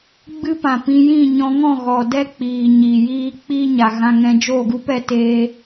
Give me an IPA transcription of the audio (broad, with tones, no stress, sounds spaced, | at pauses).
ɡ͡b ɨ˦ p ã˨ p ĩ˧ j ĩ˦˨ ɲ ɔ̃˧ ŋ ɔ̃˦˨ ɣ ɔ˨ d ɛ˦ k͡p iː˨ ɲ iː˨ j iː˦ k͡p iː˦ ɲ a˨ ɣ ã˧ ŋ ɛ̃˧ d͡ʒ oː˦˨ ɡ u˦ p ɛ˨˦ t eː˧